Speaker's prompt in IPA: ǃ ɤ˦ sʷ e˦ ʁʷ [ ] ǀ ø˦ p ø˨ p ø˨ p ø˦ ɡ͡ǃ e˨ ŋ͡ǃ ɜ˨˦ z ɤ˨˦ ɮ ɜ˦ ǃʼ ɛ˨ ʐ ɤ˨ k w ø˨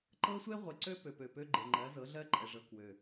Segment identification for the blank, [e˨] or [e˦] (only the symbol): e˨